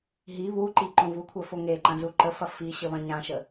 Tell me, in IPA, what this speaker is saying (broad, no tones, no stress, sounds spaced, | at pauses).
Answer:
ɦ i β u ǃ i ǃ õ v u kʷʰ œ f o ŋ e ǃ ɐ̃ z u ǃ ə f ɐ f i ɕ ə β ɐ̃ ɲ ã ʃ ə